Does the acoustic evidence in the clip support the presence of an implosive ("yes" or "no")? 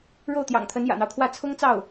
no